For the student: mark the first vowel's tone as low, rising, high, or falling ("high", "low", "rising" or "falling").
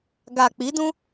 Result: low